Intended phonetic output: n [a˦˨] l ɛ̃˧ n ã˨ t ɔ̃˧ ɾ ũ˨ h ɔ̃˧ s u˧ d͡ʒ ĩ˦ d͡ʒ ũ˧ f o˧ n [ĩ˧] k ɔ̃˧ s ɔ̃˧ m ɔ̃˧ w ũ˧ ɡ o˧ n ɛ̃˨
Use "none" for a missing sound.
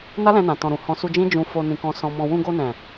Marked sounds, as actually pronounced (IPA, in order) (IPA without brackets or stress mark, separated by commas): a˦, ĩ˧